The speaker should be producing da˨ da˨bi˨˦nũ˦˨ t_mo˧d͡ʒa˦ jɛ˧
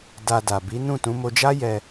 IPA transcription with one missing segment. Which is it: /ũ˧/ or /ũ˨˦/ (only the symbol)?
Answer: ũ˨˦